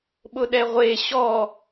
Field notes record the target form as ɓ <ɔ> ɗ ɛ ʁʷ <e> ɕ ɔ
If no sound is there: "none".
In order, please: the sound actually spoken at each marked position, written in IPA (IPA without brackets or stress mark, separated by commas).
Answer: ʊ, e